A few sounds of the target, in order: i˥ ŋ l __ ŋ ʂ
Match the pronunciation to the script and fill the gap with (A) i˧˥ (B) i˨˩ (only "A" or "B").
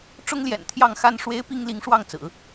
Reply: A